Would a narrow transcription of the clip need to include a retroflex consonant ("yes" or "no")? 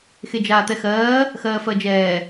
no